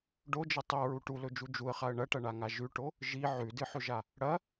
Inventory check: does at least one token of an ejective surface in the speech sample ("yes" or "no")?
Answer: no